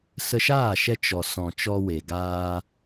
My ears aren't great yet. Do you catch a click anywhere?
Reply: no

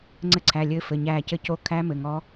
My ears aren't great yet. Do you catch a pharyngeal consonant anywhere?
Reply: no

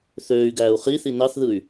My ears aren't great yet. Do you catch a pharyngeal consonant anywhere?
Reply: no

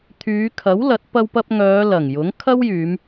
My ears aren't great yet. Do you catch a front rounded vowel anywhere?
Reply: yes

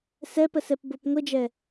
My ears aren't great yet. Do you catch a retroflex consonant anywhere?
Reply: no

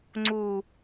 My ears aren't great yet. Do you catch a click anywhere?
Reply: yes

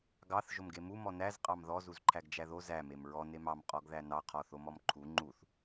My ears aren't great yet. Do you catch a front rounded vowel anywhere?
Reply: no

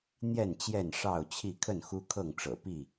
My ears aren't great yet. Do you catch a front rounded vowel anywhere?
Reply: no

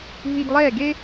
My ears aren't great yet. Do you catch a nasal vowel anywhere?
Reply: no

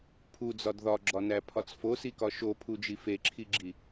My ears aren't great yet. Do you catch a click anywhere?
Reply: yes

